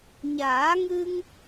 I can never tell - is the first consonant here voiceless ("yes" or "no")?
no